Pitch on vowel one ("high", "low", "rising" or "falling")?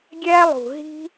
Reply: high